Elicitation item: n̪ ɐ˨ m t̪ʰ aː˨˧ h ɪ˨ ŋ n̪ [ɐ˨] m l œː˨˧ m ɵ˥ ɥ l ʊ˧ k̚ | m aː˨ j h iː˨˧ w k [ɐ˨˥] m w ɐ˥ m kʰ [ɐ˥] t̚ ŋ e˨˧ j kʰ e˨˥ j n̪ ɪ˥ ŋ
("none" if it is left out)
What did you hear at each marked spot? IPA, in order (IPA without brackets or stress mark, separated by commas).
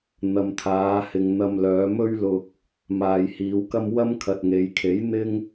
ɐ˧, ɐ˥, ɐ˨